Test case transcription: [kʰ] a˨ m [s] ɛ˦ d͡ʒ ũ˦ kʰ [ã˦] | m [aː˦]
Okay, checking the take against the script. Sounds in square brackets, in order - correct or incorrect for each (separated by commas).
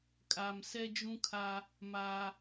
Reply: incorrect, correct, incorrect, correct